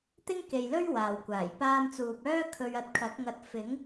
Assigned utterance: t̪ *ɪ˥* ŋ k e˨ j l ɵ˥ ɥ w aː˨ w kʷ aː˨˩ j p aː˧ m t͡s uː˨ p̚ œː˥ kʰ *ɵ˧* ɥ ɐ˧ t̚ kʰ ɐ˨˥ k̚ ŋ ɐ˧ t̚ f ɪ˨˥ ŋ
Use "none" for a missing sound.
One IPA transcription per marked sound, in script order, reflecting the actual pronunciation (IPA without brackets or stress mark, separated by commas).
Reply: ɪ˥, ɵ˧